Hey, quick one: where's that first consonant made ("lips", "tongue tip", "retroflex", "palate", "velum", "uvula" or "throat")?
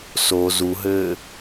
tongue tip